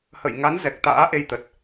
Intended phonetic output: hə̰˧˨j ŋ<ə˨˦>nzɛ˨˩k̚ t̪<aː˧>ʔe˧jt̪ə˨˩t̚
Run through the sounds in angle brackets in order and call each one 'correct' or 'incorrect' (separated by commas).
incorrect, incorrect